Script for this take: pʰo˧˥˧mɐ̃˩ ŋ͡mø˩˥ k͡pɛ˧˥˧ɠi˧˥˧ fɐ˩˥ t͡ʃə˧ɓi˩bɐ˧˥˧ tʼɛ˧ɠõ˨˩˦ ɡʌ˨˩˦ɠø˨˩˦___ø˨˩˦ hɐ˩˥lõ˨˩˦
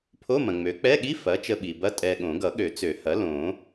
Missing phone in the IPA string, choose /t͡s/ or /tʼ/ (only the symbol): t͡s